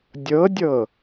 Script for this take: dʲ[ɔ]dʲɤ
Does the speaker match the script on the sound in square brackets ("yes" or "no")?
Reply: no